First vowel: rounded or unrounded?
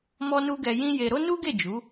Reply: rounded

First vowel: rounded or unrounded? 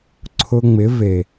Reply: rounded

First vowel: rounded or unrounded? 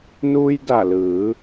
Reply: rounded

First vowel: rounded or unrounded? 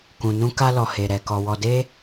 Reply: rounded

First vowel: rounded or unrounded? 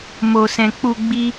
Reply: rounded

